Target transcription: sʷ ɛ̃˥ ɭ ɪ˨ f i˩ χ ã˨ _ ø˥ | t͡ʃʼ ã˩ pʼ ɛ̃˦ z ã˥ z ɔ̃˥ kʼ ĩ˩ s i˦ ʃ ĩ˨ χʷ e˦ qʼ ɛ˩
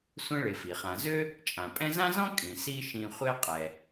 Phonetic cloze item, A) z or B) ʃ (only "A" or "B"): A